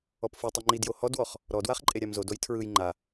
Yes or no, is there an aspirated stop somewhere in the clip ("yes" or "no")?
yes